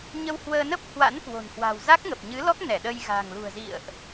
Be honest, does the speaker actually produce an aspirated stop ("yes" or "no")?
no